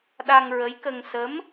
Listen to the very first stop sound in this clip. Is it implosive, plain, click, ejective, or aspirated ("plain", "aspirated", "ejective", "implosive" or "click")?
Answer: implosive